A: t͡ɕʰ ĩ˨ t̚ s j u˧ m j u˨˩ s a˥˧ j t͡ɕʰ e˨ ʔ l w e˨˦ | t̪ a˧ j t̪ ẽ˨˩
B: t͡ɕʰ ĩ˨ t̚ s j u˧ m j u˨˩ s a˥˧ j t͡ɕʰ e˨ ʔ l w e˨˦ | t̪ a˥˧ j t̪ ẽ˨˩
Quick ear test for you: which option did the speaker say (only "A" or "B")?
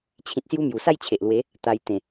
A